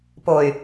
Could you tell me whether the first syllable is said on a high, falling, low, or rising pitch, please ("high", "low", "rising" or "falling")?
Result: low